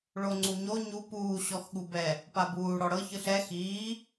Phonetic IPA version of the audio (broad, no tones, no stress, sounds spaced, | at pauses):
ɭ o ŋ͡ǀ u ɲ o ɲ u p uː ɕ ɔ x ɠ u b ɛ | p a b uː ɽ ɔ ɽ ɤ ç ɯ ɬ ɛ x iː